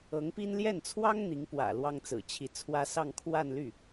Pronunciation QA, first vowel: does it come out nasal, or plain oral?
oral